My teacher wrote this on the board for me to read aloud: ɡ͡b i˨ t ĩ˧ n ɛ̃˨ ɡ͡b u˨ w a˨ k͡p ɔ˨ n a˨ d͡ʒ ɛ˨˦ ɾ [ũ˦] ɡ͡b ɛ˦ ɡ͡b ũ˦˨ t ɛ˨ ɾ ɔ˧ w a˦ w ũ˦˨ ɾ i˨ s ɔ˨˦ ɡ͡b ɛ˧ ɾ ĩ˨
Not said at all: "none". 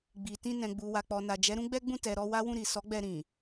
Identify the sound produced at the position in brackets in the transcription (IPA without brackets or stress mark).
ũ˦